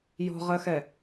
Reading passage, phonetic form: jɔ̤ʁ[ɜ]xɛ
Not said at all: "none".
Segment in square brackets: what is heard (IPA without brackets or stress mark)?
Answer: ɜ